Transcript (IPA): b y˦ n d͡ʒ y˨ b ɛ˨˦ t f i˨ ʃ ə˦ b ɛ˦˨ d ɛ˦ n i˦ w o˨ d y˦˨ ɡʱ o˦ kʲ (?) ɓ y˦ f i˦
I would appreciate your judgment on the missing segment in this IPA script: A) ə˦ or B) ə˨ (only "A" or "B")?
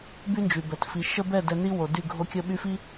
A